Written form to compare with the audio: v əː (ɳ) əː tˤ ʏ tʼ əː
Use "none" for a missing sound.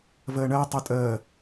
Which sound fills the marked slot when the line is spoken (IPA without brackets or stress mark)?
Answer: ɳ